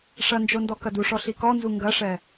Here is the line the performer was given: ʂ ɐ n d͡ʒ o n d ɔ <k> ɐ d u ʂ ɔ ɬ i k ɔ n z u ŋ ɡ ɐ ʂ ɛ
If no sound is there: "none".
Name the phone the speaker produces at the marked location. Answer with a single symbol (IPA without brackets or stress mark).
k